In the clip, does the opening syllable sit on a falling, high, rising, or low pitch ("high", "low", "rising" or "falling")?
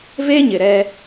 high